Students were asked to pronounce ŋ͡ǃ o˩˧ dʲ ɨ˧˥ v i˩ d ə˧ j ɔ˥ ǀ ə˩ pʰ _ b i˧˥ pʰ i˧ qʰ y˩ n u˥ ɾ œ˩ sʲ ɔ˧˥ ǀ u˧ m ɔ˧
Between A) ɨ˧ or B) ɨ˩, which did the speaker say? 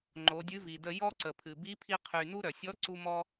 B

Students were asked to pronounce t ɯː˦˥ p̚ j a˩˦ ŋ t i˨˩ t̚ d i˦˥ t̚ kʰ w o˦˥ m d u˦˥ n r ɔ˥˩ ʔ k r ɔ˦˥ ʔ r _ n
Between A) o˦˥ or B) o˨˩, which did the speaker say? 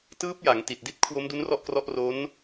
A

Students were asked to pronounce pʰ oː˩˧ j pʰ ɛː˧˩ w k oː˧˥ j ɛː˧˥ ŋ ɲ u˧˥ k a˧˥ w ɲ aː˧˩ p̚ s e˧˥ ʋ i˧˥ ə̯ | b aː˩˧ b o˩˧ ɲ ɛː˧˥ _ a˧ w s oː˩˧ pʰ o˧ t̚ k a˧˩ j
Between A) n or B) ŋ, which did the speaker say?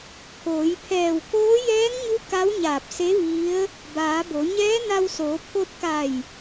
A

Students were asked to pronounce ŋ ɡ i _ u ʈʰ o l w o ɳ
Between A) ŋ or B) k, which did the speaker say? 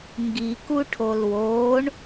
B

